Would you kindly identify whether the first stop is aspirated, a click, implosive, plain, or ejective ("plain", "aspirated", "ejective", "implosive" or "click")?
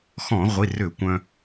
plain